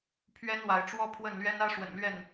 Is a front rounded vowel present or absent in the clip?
absent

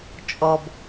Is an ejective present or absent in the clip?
present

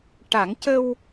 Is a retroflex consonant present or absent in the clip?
present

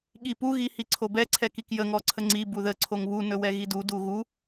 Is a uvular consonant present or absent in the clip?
absent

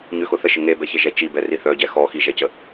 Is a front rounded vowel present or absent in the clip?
present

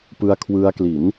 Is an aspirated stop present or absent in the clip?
present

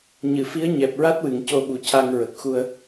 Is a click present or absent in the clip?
absent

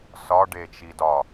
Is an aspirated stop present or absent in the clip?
absent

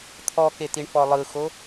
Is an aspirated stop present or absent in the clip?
present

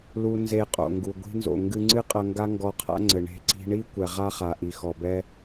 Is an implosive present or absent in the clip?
absent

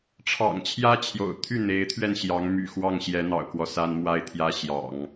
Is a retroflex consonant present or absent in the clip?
present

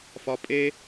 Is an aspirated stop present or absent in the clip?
absent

